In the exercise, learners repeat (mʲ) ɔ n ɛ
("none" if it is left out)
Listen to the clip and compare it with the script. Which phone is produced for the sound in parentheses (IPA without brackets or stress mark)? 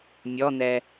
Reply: mʲ